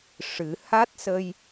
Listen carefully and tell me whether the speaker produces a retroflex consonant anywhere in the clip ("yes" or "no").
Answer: yes